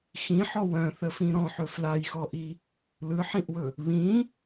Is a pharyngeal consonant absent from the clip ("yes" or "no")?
no